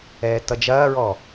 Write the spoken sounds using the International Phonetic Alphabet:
ɛːtːʌd͡ʒɐːɹɔ

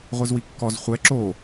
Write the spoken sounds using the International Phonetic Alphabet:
ʁʷizwikːɔz χʷɛ ǁo

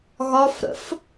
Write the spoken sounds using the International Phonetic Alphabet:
ɣɒfɾə̰f

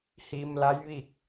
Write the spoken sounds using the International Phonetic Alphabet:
hi˧mla˧˥j ʋi˥˨k̚

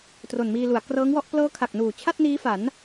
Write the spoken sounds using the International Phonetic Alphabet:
tro˨˩nmiː˧lu˩˦a̯ krɤː˦˥ŋwɔ˥˩ʔ plɤː˦˥kʰa˨˩k̚nuː˨˩t͡ɕʰa˥˩t̚ niː˦˥fa˩˦n

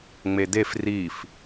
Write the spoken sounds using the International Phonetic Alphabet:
ŋ͡medef rif

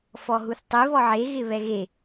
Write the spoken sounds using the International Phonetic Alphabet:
fɔɦuθtˤi βɔʕe ɣɪβɛɣe

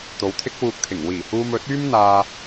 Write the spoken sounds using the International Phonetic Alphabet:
t̪o˨w t̪ʰɪ˥k̚wuː˧k̚t̪ʰɪ˨˩ŋ wiː˨˩huː˧m ɵ˨˥t̚yː˥mn̪aː˧

